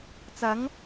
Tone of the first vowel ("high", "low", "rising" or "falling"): rising